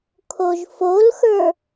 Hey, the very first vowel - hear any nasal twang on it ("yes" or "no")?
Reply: no